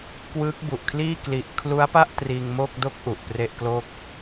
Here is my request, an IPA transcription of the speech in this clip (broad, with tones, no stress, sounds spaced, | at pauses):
k w ɯː˦˥ k̚ b u˨˩ ʔ kʰ l iː˥˩ k l i˨˩ ʔ kʰ l u˦˥ a̯ p a˥˩ ʔ t r iː˧ ŋ m oː˥˩ k̚ d o˥˩ k̚ ʔ u˨˩ ʔ p r e˥˩ ʔ k l o˥˩ k̚